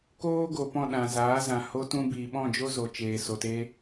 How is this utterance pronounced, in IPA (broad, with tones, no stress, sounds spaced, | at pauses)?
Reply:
k oː˦ ɡ o˨ p ɔ̃˦˨ ɗ ã˨ z aː˨˦ z ã˨ h o˧ t ũ˧ b iː˨ ɓ ɔ̃˦˨ d͡ʒ o˦ z o˨ t͡ʃ eː˨ s o˨ t e˧